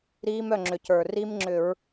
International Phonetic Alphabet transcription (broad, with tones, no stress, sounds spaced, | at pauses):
ɾ iː˦˥ m œ˥˨ ŋ͡ǁ ʏ˨˩ cʰ ə˞˨˩ r i˦˥ m ŋ͡ǁ ʏ˧˩˧ ɹ